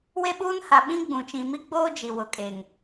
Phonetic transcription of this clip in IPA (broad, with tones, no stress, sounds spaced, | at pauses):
w e˦ ɓ uː˦ n h a˨ ɓ ĩ˦ ɡ͡b ũ˨ t͡ʃ ĩ˨ m i˦ ɡ͡b oː˦ d͡ʒ i˨ w ʊ˨ kʼ e˨ ŋ